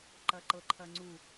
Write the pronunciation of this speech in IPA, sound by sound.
ǃɐǃɤǃʰɐŋ͡ǀu

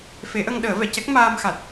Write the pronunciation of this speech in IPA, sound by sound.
fe˨˩˦ʔə˧ŋ ɗəː˨˩˦vɛ˨˩˨cɛ˦˥k̚ maː˧mxa˨˩t̚

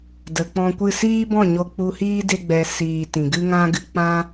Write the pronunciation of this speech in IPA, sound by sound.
də˨k͡pɔ̃˧kʷɨ˦˨ siː˦bɔ̃˦˨ ɲo˧k͡pu˧hiː˦ de˧ɡ͡bɛ˨ siː˨ tĩ˨ɡɨ˦ ŋã˦ɡɨ˧ k͡pã˦

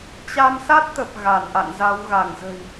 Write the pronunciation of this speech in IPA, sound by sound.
t͡ɕa˧msa˦˥t̚t̪ə˨˩p̚ ɣa˧˩nʔa̰˧˨nza˨˦w ɣa˧˩ŋzə̤˨˩j

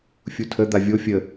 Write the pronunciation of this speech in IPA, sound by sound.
fʲutʰə d̪avʲo fʲə

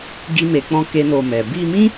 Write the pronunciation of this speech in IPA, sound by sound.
ɡi˦me˧k͡pɔ̃˦ ke˦no˧mɛ˨ bi˧mĩ˦

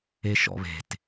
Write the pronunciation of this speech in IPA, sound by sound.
eʃɔ̰βe̤t

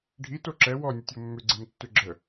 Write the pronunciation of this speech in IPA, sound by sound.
ɖʱito ǁɛ wɔnʲətʲo mːʏɡ͡ǀemtːʏ ɡ͡ǁə

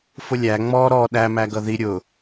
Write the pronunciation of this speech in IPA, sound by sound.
fʊlʲæ ŋ͡mɔ ɾɔ ɗæ mæɡʌði ɾʲʊ

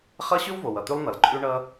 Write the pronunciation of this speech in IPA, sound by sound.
χʌ˦ ɕʉ˦w vo˩wʌ˩t̪ʉ˦lˠ n̪ʌ˩lǃʼʉ˦ɳʌ˦

